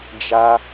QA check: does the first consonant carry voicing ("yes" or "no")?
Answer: yes